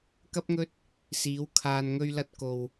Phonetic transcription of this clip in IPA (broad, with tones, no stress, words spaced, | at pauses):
kɐ˥p̚ŋɵ˥t̚ | siː˨˥w kʰaː˨nŋɵ˧ɥlɐ˧t̚ko˨w